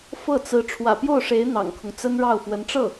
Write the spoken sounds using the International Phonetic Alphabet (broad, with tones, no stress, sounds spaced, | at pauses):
f ɤ˥˩ t͡s ɹ̩˧˥ ʈ͡ʂʰ w ä̰˨˩ p j o˥˩ ʊ̯ ʂ e˧˥ ɪ̯ n̪ ɑ̰˨˩ ŋ kʰ ʊ˦ ŋ t͡s ə˥ n ɻ ɑ˥˩ ʊ̯ f w ə˧˥ n ʈ͡ʂ ɤ˥˩